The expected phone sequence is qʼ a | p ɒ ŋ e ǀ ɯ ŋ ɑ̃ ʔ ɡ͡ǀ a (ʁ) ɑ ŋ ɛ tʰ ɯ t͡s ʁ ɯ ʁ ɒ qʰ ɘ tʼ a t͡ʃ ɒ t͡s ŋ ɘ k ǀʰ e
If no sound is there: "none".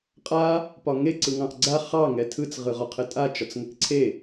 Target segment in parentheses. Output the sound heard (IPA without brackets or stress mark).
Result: χ